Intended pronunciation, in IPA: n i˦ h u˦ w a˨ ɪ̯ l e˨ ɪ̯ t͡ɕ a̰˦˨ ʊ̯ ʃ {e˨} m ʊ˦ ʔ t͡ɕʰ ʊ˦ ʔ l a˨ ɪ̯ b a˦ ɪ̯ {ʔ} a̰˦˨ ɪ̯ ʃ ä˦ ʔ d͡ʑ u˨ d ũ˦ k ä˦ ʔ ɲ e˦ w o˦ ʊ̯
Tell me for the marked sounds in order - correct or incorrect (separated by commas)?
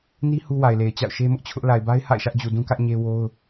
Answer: incorrect, incorrect